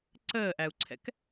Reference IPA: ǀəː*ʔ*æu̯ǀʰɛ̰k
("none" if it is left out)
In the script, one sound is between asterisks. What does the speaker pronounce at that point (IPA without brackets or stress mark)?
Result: ʔ